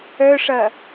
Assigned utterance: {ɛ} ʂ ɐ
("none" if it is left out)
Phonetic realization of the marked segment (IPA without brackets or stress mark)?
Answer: œ